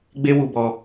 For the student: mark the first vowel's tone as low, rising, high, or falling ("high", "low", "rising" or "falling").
high